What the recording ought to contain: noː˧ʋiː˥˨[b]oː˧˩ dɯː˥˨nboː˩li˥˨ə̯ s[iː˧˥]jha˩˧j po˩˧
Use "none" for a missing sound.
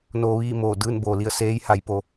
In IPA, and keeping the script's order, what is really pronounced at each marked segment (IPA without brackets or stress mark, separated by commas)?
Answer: m, eː˧˥